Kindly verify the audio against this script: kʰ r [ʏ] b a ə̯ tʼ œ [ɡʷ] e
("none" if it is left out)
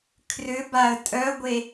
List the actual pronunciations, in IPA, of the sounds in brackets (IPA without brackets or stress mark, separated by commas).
ʏ, ɡʷ